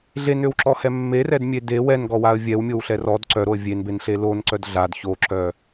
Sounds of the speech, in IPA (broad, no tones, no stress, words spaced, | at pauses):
ɮenøwǁɔhɛ mːerɛdmʲe de wɛnɡɔwaə̯ vʲɛwmʲowɬɛ rɔd ǀœɾoə̯ vʲenbenɬe lonǀœd ɮad çoǁœ